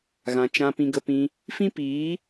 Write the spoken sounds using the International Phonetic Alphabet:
ɣ ã˨ t͡ʃ ã˧ p ĩ˧ ɡ ə˧ p ĩ˧ | f ĩ˦ p iː˨˦

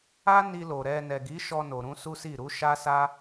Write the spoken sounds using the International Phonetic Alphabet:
a˦ n i˧ l o˨ ɾ ɛ˧ n ɛ˨ ɡ i˨˦ ʃ ɔ˧ n o˨ ɾ ũ˧ s u˦ s i˦˨ ɾ u˨˦ ʃ a˦ s a˦

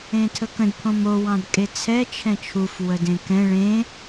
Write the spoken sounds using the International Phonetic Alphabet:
ẽ tʰ ə k ə̃ d pʰ õ m o w ɑ̃ d kʼ e t͡sʰ ɛ t͡ʃʰ ɛ̃ t͡ʃʰ u f w ə d ẽ k ɛ̃ ɭ ẽ

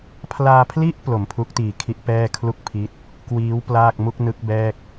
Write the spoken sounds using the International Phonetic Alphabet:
pʰ l aː˧ pʰ l i˥˩ ʔ p l o˩˦ m pʰ u˦˥ k̚ t iː˨˩ kʰ i˦˥ ʔ p ɛː˥˩ kʰ l u˥˩ k̚ pʰ i˦˥ t̚ | k w iː˦˥ w p l aː˥˩ k̚ m u˥˩ k̚ n ɯ˦˥ k̚ b ɛː˥˩ k̚

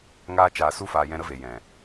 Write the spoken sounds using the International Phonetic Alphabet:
ŋ aː˧ t͡ʃ aː˨ s u˧ f aː˨ j ɛ̃˧ ɾ ə˦ v e˨ j ɛ̃˨

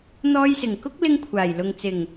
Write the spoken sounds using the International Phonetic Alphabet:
n̪ ɔː˧ j s ɪ˨˩ ŋ k ʊ˥ k̚ l ɪ˧ ŋ kʷʰ aː˨˩ j l ʊ˨ ŋ t͡s ɪ˨˩ ŋ

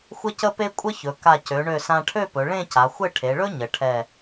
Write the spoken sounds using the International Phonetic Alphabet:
xʷ ə˥ c ə˥ p e˥ kʷʼ ə˥ ç ɵ˩˧ k a˧˩ c ø˩˧ ɳ ø˧˩ s ã˧ ʈʰ ø˥˧ p ɵ˩˧ ɭ ẽ˥˧ c a˩˧ xʷ ɘ˥˧ ʈʰ e˩˧ ɭ ɵ˥ ɲ ə˩˧ ʈʰ ɛ˧˩

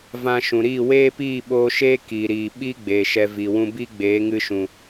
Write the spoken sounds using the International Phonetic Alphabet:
v ã˧ ʃ ũ˨ ɾ iː˦˨ w eː˦ p iː˦˨ ɓ oː˧ ʃ eː˦ k iː˨ ɾ iː˨ ɓ i˦ ɡ͡b eː˨ ʃ ɛ˧ v i˨ w ũ˧ b i˦ ɡ͡b eː˨˦ ŋ ɨ˧ ʃ ũ˨

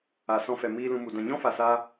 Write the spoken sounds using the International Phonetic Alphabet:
a˨ s ɔ̃˧ f ɛ˨ m iː˧ l ũ˧ m u˨ d ã˨ ɲ ɔ̃˦ f a˨ s aː˧

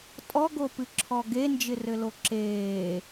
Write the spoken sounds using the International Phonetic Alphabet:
tʼ ɔ ɡ o p ɨ ǁʰ ɔ ɡ e n d͡ʒ ɪ r ɘ l o ǁ eː

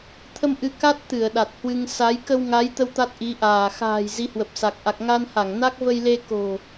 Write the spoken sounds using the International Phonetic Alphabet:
t̪ʰ ə˧ m ʔ ɨ˨˦ k a˦˥ t̚ t̪ ɨ˧˩ ə̯ ɗ a˨˩ t̚ h w ɨ˧ ŋ s a˨˦ j k ə˧ w ŋ a˨˦ j t̪ ə˧ w t̪ a˦˥ t̚ ʔ i˨˦ ʔ aː˧˩ x a̤ː˨˩ j z i˨˦ h w ə˨˩ p̚ s a˨˩ k̚ ʔ a˨˩ k̚ ŋ a˧ n h a˧˩ ŋ n a˦˥ k̚ v ə˧ j l e˧ k o̤˨˩

